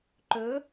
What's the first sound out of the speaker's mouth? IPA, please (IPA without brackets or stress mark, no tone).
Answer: ǃ